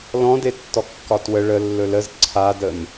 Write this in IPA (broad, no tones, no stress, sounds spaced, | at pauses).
l ɔ̃ d e tː ɔ kː ɒ t w ə ɭ ə lː ɵ l ə z ǀʰ a d ə m